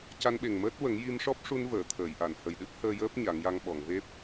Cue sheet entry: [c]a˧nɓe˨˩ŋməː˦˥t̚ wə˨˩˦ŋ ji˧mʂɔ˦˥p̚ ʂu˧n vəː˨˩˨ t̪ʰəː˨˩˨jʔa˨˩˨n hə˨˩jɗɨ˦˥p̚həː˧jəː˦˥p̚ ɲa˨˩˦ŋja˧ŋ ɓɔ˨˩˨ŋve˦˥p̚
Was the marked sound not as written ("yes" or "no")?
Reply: no